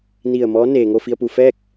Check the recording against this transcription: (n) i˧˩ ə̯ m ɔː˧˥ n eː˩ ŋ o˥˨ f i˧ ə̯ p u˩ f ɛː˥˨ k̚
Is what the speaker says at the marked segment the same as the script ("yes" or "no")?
yes